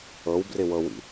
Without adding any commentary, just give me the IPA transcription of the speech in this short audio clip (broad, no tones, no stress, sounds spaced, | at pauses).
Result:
ɤ w b r ɪ w ɤ w ḭ